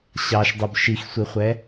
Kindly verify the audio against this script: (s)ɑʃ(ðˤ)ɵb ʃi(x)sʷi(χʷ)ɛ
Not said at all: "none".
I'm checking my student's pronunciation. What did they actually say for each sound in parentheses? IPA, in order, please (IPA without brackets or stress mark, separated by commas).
ɕ, dˤ, x, χʷ